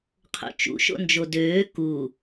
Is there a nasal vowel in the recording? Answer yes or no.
no